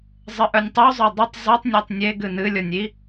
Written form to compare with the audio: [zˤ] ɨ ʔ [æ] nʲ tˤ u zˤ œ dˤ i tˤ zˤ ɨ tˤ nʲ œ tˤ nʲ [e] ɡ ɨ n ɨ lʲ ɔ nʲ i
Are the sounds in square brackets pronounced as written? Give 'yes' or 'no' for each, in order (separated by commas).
yes, no, yes